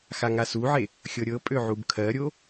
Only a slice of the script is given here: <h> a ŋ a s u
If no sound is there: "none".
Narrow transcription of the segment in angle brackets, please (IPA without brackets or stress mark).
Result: x